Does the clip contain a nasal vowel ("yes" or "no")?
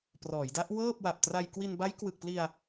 no